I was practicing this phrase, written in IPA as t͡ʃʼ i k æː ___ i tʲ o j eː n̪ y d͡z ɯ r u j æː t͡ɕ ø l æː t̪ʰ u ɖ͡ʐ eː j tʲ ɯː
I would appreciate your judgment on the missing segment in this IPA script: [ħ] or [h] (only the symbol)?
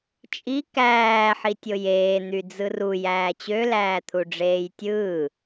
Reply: ħ